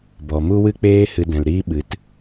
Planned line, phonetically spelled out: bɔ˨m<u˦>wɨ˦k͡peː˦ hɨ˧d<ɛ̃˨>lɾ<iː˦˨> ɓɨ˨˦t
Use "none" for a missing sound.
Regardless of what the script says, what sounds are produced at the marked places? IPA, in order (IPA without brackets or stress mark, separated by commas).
u˦, ɛ̃˨, iː˦